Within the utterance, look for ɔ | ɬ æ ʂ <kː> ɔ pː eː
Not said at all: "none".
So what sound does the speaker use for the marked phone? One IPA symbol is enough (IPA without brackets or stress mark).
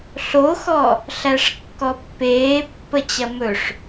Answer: kː